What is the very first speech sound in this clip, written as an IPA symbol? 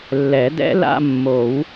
lː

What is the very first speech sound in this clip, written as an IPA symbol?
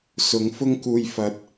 s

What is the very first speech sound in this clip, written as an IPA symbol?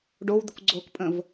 ɖ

